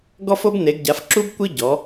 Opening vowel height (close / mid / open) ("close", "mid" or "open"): mid